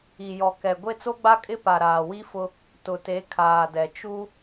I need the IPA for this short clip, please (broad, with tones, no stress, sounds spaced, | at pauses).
i˨ j ɔ˨ k ɛ˨ ɡʷ e˦ t͡s o˦ ɡ͡b a˦ kʼ ɪ˦ p a˨ ɾ aː˨ w i˦ f ʊ˦ | t ʊ˨ t e˨˦ kʰ aː˨ d ɛ˨ t͡ʃ u˦